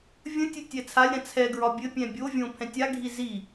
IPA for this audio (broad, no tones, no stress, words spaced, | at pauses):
vʲə̃ tʲɘtʲɛt͡sʰalʲɾã t͡sʰɛɡɹɒ bʲɘpʲɛ̃ bʲovʲõ pʰɛ̃tʲa ɡʱizi